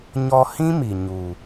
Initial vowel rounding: rounded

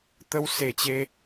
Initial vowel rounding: unrounded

